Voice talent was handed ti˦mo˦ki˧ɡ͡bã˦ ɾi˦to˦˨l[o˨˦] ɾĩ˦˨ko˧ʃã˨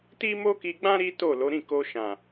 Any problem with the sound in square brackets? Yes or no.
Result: no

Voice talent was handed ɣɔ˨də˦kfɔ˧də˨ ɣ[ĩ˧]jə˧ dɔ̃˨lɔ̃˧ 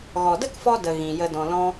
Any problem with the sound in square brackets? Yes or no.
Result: yes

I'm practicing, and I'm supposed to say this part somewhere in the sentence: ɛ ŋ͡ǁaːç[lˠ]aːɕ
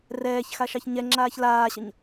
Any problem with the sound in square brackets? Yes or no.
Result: yes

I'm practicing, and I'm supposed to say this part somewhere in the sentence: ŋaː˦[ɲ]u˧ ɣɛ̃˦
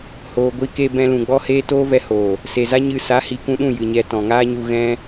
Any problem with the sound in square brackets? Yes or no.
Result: no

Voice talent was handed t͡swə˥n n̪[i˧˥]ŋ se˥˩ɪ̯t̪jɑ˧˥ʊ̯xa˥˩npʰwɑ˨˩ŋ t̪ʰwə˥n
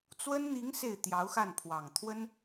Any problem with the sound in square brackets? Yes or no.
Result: no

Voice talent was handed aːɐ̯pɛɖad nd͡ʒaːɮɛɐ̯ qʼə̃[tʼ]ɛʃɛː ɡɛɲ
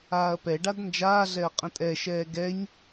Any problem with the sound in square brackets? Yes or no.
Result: no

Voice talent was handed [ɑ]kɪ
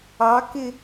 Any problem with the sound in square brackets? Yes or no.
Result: no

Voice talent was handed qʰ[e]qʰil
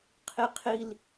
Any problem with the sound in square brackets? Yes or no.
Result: yes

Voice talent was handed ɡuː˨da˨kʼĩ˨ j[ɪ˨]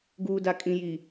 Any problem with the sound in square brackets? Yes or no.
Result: yes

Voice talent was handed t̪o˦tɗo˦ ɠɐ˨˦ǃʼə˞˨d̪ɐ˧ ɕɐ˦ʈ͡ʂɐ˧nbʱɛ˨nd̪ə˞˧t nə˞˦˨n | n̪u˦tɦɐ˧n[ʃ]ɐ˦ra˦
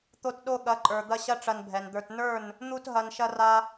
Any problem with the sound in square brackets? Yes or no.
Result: no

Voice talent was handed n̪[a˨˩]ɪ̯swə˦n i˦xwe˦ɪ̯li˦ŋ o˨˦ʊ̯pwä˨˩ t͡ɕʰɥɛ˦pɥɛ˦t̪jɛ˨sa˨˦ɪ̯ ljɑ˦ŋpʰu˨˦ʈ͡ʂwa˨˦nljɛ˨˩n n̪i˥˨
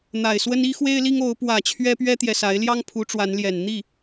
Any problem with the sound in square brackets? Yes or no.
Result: no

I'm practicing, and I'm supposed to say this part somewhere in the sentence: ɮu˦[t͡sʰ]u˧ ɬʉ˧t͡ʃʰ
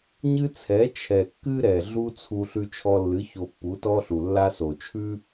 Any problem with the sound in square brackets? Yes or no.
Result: no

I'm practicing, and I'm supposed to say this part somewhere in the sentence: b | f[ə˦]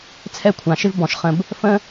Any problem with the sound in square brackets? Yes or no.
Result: yes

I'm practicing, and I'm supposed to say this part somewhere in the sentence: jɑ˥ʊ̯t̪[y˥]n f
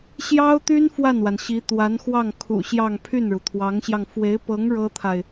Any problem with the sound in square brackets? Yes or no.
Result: no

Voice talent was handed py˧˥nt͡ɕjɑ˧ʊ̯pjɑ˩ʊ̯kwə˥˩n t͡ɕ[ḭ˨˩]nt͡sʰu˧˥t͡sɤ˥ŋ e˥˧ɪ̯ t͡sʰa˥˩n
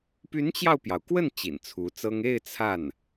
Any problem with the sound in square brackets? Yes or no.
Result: no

